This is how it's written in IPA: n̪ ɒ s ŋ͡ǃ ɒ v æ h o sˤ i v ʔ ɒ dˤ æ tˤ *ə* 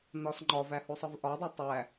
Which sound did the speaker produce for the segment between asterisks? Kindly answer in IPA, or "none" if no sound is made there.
æ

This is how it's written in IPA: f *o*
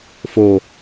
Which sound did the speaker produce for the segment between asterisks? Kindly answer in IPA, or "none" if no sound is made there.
o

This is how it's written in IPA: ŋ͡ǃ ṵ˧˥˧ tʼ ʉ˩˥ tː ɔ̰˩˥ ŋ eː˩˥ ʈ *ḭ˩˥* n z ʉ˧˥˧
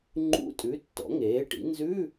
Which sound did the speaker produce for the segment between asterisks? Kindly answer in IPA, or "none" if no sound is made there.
ḭ˩˥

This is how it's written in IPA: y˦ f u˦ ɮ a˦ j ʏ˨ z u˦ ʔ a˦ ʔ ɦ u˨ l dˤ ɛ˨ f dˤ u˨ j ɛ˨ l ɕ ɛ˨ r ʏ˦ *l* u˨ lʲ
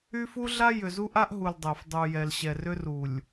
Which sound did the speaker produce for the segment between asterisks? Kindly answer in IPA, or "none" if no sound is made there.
r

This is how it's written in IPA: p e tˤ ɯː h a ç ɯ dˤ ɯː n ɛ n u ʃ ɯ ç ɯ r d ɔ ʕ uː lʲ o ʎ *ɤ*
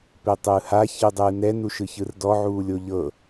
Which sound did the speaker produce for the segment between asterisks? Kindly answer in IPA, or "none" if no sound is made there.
ɤ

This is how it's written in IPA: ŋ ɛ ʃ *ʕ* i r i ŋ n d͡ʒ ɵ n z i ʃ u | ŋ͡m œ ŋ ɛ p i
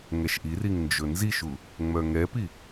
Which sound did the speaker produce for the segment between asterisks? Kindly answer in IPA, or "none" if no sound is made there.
ʔ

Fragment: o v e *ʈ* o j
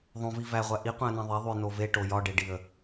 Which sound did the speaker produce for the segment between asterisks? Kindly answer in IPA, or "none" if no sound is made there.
ʈ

